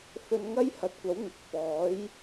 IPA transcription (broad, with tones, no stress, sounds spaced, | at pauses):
f ɵ˧ n ŋ ɐ˥ j h ɐ˨˥ t̚ kʷ ɐ˨˥ w ŋ ɪ˨˥ k̚ f ɔː˨˥ j